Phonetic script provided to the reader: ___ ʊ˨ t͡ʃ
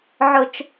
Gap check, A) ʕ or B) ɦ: A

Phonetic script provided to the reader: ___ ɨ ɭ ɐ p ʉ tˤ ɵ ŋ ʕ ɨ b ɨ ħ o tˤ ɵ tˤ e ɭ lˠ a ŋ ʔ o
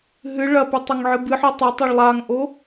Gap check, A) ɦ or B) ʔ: A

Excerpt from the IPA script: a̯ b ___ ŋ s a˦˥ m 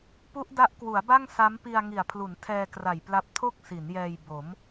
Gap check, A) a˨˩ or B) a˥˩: B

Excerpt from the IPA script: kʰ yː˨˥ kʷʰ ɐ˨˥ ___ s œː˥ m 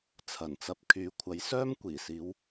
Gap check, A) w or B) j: B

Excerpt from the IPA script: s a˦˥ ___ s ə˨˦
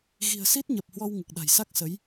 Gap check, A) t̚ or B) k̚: B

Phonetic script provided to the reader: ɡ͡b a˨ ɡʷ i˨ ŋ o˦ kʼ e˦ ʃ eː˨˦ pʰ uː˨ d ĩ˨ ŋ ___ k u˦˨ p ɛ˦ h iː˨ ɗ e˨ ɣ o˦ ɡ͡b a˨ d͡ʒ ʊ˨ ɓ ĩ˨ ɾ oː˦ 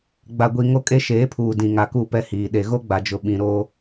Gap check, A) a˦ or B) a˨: B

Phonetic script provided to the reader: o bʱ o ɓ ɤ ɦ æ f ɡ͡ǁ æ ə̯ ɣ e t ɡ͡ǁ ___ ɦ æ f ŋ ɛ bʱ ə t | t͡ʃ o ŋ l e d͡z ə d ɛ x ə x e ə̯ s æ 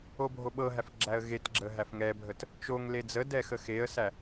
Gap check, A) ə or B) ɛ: A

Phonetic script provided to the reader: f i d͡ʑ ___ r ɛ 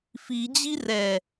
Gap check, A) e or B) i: B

